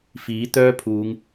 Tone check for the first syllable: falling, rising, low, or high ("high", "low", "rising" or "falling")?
rising